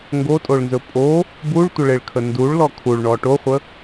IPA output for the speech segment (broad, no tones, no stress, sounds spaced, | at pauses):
ŋ ɡ o tʼ o ɭ n z ɵ pʼ o | b u ɭ tʷ ə ɭ e ɭ kʰ ə n d u ɭ l ɔ kʰ u ɭ ɳ ɔ ʈ o χʷ ə